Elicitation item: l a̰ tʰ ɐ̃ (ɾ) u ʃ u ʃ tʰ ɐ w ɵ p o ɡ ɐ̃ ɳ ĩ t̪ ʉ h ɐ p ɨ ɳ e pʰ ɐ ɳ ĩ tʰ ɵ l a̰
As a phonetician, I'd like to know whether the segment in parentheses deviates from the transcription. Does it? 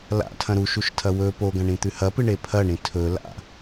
no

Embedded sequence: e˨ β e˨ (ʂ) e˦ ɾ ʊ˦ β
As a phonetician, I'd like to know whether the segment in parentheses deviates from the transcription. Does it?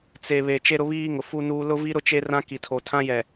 yes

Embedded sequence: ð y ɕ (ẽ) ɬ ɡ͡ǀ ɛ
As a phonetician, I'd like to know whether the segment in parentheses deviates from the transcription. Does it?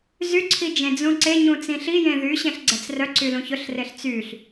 no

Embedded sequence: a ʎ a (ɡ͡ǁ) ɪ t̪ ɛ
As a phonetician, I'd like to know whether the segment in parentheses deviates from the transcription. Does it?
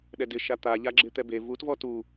no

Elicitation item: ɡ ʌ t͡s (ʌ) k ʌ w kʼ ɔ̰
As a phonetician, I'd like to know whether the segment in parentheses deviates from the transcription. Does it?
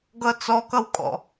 yes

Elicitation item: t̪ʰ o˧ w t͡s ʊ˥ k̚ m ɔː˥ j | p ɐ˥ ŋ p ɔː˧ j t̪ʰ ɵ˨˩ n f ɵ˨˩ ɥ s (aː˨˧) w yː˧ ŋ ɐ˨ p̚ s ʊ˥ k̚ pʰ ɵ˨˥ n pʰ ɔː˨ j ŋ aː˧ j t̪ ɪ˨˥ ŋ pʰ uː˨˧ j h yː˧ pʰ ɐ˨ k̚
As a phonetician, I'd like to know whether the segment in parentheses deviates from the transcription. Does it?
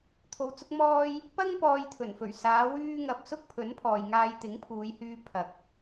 no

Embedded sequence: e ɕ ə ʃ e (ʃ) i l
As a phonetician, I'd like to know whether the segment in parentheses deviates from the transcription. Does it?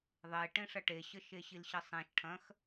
yes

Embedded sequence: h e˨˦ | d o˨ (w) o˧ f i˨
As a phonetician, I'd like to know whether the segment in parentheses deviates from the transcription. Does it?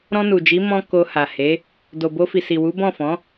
yes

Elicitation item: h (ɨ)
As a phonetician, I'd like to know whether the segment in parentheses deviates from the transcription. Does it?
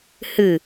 no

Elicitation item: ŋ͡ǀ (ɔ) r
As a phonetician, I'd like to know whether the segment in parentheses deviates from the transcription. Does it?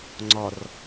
no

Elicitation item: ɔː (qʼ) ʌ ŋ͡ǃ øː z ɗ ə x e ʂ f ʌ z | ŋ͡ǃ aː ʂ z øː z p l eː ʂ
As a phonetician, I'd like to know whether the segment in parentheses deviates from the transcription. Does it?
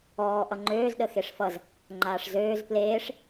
yes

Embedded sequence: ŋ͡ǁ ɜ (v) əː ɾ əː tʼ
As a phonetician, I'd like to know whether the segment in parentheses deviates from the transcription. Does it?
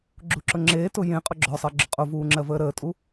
no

